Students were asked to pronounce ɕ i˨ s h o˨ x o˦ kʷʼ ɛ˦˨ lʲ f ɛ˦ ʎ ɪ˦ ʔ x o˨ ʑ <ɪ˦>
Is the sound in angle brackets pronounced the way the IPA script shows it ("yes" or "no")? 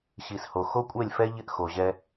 no